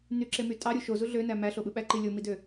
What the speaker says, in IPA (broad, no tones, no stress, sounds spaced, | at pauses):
n y ǁ e m y tʼ ɑ ɾʲ u ʃ o z u ɮ ø n æ m æ ɬ o ɓ ɯ ɓ æ ǃ i lʲ o m i d ø